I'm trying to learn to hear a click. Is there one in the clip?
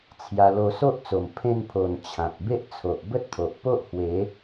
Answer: no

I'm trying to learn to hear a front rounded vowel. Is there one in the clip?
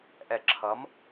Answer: no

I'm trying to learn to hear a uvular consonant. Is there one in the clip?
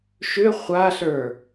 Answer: yes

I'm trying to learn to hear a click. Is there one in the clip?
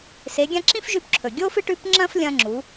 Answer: yes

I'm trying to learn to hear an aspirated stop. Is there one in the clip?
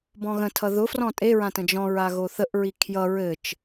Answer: yes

